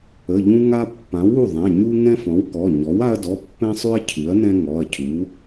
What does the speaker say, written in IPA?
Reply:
ə˩˧˩ʎũ˦ŋa˦ pːã˩˥w u˩˧˩ðˤɛ̃˩˧˩ ɲu˦ ŋɛ̃˦fɔ̃˩˥wkɔ˩˧˩ ɲɔ˩˥wa˦ɐ̯dɔ˩˧˩ pːɛ̃˦sˤʉ˦ɐ̯ cʰʉ˩˥ɐ̯nɛ̃˦ ŋɔ˩˧˩ɐ̯cʰu˩˥

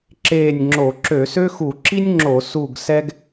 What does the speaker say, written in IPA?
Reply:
ǁeː˦˨nʲŋ͡ǁo˧˩˧ ǁø˧˩˧sø˥xu˧˩˧ ǁi˥nʲŋ͡ǁo˧˩˧ su˦˨ɡsɛ˥ɡ

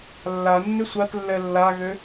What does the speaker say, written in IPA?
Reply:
lːa nːʏsʷatlːɛ lːaɣø

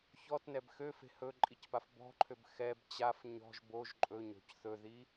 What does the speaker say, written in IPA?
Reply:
çɔtnɛb xøfe̤ hɵǃʼicpaf bɔ̤ǃʰøb xɛb t͡ɕaf ɲɔ̤ʒ boʒ ǃʼɵɲɔ̤c θɵði

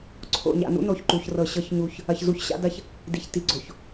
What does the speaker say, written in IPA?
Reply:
ǀʰo̰˨ɲa̰˨nṵ˦ no˨çǃu˨çrɤ˨ ɕɤ˦çɲu˦˨ç | ɐ˨çzu˨ç ɕa̰˦dɐ˦ç | di˨çti˨ɡ͡ǀo˨ç

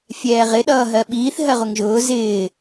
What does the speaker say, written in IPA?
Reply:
fʲɛːʁɪ ɗʌːɦɜɓiːθ ɦɜʁʊŋʒʊː zɪː

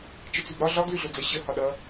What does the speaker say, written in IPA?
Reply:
t͡ʃət͡sʉbɾɒ ɮɒɡ lʉɮod͡zʌ ɕə hɒɗʌ

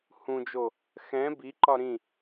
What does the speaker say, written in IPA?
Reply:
hũd͡ʒo | xɛ̃ biǃɒ ɾĩ

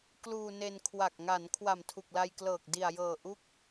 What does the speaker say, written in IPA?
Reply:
kluː˧ne˧nkʰwa˨˩k̚ ŋa˩˦n kʰwa˨˩mtʰu˨˩k̚la˧jklɤː˨˩k̚ di˨˩a̯jɤː˨˩ ʔu˦˥k̚

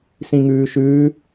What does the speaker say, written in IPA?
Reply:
sĩŋʉːʃʉː

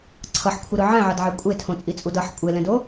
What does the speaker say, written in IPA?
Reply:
ǀʰʌħkʷʰiɾɯ ʕɛ̃ʕʌdʕɛ kʷʼetʰõt͡sʼit͡sʼud ʌħ kʷʼelɛ̃do

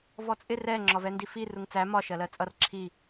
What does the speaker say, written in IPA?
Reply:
vɔt͡sʼɪ rɛ ŋ͡ǁɒvɛndifi ruŋt͡sæ mɒ ʃɜlɜt͡sʼʌr ǁʰi

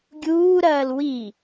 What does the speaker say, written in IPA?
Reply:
ɡʲuːɾɐːl wi

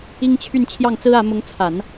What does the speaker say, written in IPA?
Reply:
i˥ŋt͡ɕʰy˥˧n t͡ɕʰjɑ˥˩ŋt͡sɹ̩˥ä˧˥ mʊ˧˥ŋt͡sʰa˨˩˦n

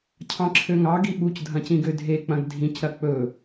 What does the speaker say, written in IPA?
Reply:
cʰɑ̃ǁʰøŋɑ ɡiɓuc dʱɐ̃cĩɡødʱe k͡pɐ̃ɡdʱĩc ɾɐk͡pɵ

